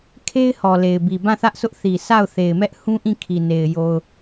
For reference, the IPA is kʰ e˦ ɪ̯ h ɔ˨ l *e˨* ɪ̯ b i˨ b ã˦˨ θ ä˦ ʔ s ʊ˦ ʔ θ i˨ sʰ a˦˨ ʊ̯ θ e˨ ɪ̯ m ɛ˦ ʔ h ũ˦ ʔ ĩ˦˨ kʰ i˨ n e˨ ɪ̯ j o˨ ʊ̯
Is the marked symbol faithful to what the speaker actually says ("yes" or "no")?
yes